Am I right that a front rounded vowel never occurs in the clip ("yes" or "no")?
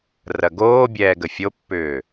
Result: no